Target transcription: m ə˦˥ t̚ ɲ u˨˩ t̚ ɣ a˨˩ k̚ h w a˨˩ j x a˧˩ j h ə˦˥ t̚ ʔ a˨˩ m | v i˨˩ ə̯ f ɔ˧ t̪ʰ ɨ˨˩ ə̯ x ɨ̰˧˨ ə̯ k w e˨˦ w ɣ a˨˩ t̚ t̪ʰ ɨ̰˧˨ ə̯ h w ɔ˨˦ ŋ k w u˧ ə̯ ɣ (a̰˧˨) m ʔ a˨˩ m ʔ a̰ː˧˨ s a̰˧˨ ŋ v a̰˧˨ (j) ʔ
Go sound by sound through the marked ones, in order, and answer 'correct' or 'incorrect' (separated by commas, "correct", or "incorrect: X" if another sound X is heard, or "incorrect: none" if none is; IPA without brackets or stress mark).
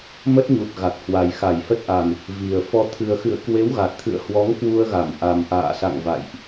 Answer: incorrect: a˧˩, correct